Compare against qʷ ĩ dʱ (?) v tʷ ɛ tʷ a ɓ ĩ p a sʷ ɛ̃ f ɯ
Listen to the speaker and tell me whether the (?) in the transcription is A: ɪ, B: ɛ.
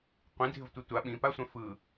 A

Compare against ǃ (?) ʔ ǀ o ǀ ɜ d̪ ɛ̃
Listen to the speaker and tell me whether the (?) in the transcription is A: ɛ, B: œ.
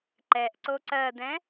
A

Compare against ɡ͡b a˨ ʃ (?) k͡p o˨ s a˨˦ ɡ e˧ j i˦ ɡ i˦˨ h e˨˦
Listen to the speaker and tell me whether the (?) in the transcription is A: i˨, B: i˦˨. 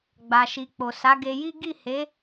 A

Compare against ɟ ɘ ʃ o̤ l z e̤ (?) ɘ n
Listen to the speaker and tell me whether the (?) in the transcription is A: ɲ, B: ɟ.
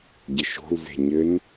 A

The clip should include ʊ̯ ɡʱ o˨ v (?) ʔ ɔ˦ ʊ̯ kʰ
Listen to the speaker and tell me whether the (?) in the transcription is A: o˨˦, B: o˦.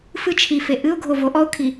A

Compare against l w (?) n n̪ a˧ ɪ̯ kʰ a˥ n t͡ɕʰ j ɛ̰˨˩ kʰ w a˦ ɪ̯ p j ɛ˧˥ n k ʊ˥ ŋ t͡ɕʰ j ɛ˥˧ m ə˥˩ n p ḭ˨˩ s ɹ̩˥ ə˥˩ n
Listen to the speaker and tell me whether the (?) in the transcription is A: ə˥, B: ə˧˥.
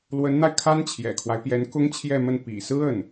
B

